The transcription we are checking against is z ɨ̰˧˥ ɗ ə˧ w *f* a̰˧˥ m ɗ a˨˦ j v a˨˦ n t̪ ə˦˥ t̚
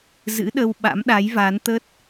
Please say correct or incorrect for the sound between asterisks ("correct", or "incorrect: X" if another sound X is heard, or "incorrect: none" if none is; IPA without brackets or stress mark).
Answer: incorrect: ɓ